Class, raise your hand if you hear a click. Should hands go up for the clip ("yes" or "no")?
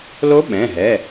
no